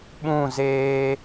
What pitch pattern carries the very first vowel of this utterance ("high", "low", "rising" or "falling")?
falling